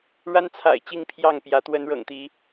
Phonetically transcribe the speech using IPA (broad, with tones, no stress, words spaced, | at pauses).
ɻa˦nt͡sʰa̰˨˩ɪ̯ t͡ɕi˥˨ŋpʰjɑ˥˨ŋpjä˨˦ t̪wə˨˦nɻɤ̰˨˩ŋt̪i˨˦